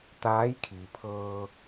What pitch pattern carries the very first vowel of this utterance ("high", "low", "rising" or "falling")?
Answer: rising